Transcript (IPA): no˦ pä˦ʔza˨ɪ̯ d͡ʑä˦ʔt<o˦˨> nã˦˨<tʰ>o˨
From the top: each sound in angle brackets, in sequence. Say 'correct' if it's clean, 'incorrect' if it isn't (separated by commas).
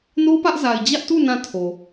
incorrect, correct